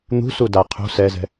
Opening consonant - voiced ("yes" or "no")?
yes